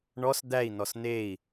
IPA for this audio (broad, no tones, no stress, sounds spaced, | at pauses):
ɳ ɔ s d̪ æ i̯ n ɔ s n e i̯